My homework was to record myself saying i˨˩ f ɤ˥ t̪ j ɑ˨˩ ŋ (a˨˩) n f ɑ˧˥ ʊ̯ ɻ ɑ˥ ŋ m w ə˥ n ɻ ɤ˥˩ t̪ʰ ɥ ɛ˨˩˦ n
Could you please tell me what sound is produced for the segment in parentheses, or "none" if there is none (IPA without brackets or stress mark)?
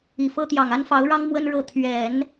a˥